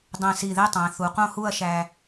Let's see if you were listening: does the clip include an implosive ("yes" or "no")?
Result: no